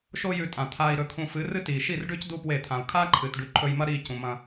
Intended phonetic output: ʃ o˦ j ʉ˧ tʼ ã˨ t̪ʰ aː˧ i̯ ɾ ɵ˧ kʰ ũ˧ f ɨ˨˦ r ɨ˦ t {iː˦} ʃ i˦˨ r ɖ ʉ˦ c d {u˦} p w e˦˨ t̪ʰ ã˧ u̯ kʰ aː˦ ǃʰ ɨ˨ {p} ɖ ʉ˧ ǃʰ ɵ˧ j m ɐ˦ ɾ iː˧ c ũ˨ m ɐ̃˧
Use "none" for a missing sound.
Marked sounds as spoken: iː˨, u˦, t

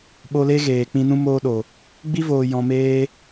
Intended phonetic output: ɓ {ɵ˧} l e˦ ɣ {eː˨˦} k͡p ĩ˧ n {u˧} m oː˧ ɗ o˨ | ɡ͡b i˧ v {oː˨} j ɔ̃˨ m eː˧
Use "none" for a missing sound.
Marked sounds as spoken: o˧, eː˨, ũ˧, oː˨

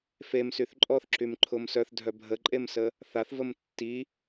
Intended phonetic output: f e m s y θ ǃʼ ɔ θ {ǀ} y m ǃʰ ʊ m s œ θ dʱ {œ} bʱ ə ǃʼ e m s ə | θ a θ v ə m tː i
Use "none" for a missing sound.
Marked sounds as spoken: ǁ, œ

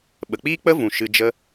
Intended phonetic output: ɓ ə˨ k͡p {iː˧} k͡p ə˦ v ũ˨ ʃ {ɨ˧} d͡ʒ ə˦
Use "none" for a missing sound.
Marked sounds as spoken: iː˦, ɨ˧

